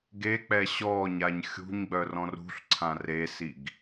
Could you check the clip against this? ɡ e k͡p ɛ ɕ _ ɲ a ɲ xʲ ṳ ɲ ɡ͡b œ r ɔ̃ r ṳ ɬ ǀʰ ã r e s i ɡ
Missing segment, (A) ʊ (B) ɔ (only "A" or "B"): B